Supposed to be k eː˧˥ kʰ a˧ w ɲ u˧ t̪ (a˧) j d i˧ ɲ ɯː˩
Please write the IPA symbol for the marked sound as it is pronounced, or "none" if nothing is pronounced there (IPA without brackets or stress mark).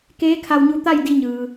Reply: a˥˨